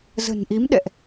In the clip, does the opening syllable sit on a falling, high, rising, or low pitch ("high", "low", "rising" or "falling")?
low